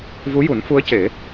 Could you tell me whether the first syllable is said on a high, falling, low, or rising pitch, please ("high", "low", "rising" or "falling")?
rising